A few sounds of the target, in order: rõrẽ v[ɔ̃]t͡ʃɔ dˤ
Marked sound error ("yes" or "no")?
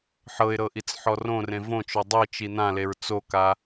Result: yes